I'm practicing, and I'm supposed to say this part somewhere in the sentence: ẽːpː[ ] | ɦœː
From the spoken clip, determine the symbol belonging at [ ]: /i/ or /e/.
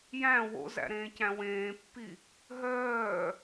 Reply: i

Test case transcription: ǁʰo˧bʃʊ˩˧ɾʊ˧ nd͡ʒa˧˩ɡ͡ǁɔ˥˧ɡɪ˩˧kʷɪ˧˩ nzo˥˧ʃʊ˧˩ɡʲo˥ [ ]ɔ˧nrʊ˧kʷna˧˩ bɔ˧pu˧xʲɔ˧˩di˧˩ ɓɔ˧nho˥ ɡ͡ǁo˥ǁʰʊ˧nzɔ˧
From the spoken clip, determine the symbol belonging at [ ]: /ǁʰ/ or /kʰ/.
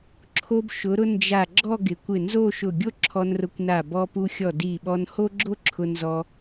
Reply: ǁʰ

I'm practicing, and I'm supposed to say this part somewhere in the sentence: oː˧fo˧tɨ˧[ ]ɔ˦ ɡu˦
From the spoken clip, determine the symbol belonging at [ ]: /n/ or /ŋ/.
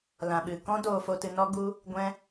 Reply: n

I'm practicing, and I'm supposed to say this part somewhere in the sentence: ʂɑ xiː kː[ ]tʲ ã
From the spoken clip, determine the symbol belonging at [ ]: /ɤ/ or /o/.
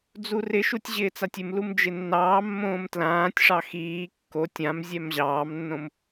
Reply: o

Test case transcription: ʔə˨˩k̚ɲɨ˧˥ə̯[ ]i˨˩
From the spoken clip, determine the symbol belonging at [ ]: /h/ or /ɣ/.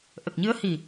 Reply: h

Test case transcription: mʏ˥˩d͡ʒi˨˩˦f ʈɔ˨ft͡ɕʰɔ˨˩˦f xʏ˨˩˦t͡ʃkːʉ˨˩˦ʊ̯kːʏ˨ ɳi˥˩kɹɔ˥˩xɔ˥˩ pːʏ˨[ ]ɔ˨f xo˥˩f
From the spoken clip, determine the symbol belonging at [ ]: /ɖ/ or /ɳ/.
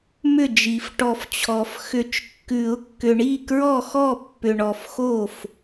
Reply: ɳ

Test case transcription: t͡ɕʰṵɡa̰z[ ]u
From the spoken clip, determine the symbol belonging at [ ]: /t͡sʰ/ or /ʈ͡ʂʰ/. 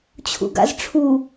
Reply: ʈ͡ʂʰ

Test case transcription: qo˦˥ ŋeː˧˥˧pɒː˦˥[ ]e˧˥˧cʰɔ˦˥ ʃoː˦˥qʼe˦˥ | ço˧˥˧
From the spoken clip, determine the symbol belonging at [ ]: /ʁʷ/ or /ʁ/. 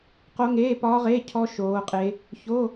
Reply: ʁ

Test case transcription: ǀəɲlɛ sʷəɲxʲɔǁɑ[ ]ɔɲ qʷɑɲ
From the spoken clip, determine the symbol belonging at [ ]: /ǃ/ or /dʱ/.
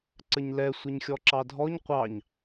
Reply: dʱ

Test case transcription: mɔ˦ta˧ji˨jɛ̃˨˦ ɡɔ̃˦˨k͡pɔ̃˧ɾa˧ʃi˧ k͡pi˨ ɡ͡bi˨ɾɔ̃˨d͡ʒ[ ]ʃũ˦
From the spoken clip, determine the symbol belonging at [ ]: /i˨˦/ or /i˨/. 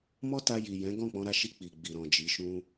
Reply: i˨˦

